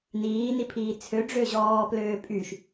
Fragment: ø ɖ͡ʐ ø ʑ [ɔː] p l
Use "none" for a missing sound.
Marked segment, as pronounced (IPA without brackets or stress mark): ɔː